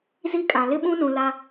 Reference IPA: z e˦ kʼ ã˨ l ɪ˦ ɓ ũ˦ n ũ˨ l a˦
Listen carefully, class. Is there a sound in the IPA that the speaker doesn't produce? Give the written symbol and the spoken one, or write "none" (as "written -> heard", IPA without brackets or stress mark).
e˦ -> i˦